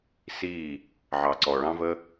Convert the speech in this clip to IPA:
s i˦˨ | ʕ ɑ˨ ǀ ɔ˨ ɭ ɑ̃˦ v ə˦

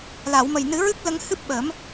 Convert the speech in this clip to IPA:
l a˨˩˨ w m ə˨˩ j n ɨ˨˩˦ ɹ ɨ˦˥ k̚ l ə˧ ŋ h ɨ˦˥ p̚ ɓ ə˨˩˦ m

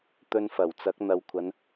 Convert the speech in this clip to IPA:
t̪ ɵ˧ n f ɐ˨˩ w t͡s ɐ˨˥ k̚ n̪ ɐ˨ w kʷʰ ɐ˨˧ n

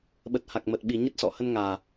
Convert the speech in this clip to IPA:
ɓ ə˨˩ t̚ h a˨˩ k̚ m ə˨˩ t̚ ɓ i˨˩ ɲ ə˦˥ t̚ s ɔ̰˧˨ h ə˧ n ŋ aː˨˩

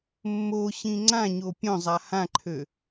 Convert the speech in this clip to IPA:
mː o ɕ ĩ ŋ͡ǀ ã ɲ o pʲ õ zˤ a h ã ǃʰ ø

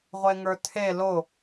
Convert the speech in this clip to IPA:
ʁʷ e ŋ ə˞ tʰ e l o

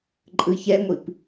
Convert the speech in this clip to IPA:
ǃʼ ɯ ç ɛ ŋʷ i p

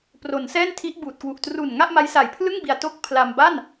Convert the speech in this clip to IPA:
p r o˩˦ n s ɛː˥˩ n tʰ i˦˥ ʔ b uː˨˩ t̚ k w u˨˩ ʔ t r u˨˩ n ŋ a˥˩ ʔ m a˦˥ j s a˨˩ j pʰ l ɯ˥˩ ŋ b i˧ a̯ t o˥˩ k̚ pʰ l a˧ m b a˥˩ n

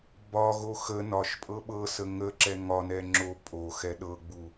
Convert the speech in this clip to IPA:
b ɒ ɣ o x ə n ɒ ʃ pʼ ɤ ɓ ɤ s ə ŋ ə ǁ ɛ ŋ ɒ n ɛ ŋ͡ǁ o pʼ o x ɛ ɗ ɤ ɡ͡b u

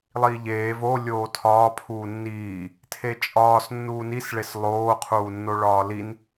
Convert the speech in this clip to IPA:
lˠ iː ʎ eː v o lʲ oː tʰ ɒː pʰ uː nː iː | tʰ e t͡ʃʼ ɒː s nː uː n i s ɭ e s lˠ oː qʰ uː nː o ɭ ɒː l i n

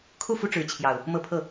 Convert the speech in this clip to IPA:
kʰ u˥˨ f u˦ ʈ͡ʂ ɻ̩˨˦ t͡ɕʰ j ɑ˨˩ ʊ̯ | m ɤ˦ pʰ ɤ˥˨

